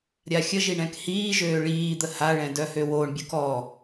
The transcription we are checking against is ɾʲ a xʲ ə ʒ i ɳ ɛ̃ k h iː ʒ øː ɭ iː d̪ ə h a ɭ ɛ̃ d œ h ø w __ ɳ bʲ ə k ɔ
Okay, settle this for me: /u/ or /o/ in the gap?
o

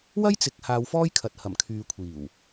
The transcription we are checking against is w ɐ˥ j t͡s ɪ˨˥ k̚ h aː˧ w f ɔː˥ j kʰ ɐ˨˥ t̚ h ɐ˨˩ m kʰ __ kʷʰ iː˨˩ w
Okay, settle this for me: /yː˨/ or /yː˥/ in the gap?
yː˨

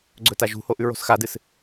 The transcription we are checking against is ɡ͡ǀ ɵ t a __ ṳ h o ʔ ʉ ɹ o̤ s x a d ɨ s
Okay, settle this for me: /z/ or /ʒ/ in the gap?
ʒ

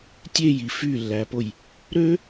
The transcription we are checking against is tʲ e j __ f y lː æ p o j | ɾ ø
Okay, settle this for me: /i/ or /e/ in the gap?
i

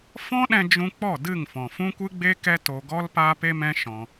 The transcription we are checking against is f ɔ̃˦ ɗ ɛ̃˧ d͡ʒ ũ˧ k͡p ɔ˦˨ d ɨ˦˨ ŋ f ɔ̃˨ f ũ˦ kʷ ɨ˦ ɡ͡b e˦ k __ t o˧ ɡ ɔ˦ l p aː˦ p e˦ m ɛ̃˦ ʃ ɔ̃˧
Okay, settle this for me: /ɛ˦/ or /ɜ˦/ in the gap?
ɛ˦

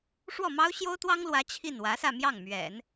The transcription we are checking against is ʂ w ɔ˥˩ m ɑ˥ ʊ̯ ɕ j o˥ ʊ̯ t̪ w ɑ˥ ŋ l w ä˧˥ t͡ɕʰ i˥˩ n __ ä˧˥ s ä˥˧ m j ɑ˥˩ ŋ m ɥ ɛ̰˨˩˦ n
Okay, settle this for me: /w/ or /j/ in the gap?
w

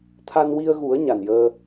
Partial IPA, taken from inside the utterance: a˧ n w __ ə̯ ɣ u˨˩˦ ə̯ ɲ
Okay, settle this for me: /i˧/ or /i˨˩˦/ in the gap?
i˧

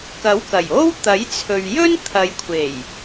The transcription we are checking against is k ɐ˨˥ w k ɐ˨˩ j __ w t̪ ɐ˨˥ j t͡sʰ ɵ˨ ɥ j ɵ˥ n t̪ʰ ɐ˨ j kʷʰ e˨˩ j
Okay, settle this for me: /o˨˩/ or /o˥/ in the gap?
o˥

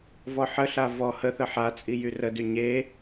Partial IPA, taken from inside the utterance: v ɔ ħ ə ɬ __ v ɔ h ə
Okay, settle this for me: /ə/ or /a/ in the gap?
a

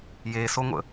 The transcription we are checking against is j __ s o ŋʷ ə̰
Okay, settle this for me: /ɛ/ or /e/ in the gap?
e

